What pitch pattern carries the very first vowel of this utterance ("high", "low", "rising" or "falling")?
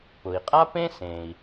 low